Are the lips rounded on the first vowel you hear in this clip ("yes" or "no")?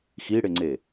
no